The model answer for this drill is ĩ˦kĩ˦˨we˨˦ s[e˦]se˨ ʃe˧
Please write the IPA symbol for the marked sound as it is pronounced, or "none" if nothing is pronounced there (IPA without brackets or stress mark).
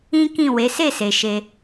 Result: e˦˨